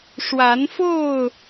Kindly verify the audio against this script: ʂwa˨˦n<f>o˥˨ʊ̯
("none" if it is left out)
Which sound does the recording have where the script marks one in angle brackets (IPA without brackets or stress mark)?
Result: f